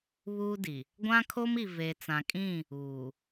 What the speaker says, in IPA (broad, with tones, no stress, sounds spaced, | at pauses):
β uː˦ d i˨ | ɡʷ ã˦ kʰ o˦ m i˨ v e˨ t͡s ã˨ kʼ ĩ˦˨ | uː˨